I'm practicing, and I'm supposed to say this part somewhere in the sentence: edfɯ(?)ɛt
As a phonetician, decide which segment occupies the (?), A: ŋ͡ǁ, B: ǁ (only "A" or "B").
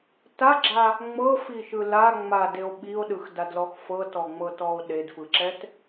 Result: B